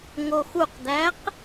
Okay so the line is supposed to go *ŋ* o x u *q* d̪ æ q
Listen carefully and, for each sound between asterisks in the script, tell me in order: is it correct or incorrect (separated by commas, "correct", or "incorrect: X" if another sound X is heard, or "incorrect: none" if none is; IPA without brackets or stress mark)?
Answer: correct, correct